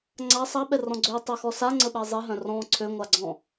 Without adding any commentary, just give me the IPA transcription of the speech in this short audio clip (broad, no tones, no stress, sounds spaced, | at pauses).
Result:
ŋ͡ǀ a sˤ a ɓ ɛ r ɔ̃ ɡ͡ǀ ø tˤ ə x ɔ s a ŋ͡ǀ ə ɓ ɛ zˤ i ɦ œ̃ r ɔ̃ ǀʰ ø ŋʷ a ɡ͡ǀ ɔ̃